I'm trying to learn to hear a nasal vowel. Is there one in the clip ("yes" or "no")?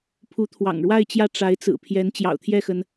no